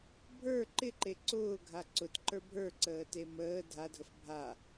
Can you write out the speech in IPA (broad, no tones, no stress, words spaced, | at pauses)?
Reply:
bʱə˞ ǃɪǃe ǀʊːɡʱa ǀʊtǃə˞ bʱə˞ǀəːte məː dʱadʱəf bʱa